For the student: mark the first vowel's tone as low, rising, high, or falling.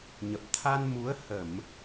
low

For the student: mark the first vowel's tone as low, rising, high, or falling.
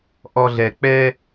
low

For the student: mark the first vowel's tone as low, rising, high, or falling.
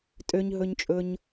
high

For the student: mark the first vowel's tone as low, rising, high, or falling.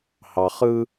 low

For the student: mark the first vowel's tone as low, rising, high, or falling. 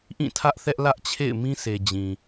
falling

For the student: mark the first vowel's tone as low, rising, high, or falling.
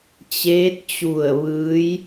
rising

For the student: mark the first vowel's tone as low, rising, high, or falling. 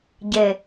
falling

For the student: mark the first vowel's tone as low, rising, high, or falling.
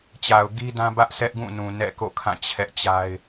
low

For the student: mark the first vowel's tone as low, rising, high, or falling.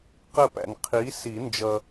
falling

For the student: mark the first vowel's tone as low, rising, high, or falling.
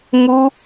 high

